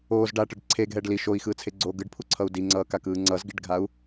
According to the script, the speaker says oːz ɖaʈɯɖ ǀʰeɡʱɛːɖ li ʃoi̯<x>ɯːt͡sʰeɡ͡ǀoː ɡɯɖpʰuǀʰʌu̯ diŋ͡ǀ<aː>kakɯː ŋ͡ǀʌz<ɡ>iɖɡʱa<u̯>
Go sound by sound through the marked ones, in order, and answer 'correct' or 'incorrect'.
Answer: correct, incorrect: ʌː, correct, correct

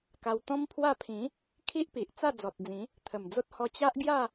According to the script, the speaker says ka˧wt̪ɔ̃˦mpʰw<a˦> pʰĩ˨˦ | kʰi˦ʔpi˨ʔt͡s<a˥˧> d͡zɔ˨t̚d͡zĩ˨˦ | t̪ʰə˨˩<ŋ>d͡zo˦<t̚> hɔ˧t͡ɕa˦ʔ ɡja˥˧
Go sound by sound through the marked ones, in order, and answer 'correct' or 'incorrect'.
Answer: incorrect: a˥˧, correct, incorrect: m, correct

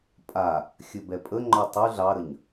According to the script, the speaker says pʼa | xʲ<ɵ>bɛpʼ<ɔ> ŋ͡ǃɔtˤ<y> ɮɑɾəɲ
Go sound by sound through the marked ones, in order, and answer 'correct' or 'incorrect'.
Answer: correct, incorrect: ə, correct

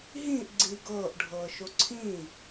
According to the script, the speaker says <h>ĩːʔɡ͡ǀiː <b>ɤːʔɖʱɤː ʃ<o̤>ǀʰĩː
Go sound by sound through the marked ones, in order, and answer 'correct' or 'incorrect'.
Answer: incorrect: ɦ, incorrect: ɡ, incorrect: o

